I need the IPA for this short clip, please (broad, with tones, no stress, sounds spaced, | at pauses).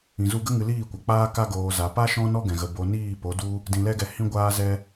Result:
ĩ˨ z u˧ ɡ ə˦ ŋ ɨ˧ l iː˦˨ kʷ a˨ k͡p aː˧ k a˧ ɡ oː˨ z a˨ p a˦ ʃ ɔ̃˦ n ɔ˦ ɡ ɛ̃˨ ɣ ə˨ b o˨ n iː˦˨ p o˨˦ d u˦ | d ĩ˨ l ɛ˧ ɡ ɛ˨ h ĩ˧ ɡʷ aː˧ z ɛ˧